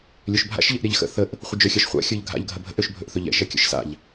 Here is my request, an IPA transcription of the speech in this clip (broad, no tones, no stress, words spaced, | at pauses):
lʲøʃbʱa̰ʃ ʎəʔɾʲaʎxə̰ θəʔ | χʷəd͡ʒøxʲaʃχʷa̰ xʲə˞ʎɡʱa̰ʎ ɡʱɐbʱə̰ʔ øʃbʱɵʔθɵʎɛ̰ ʃɐkʲə̰ʃsa̰ʎ